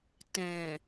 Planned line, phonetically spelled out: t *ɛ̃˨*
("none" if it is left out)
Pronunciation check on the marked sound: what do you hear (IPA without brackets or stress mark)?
ɛ̃˨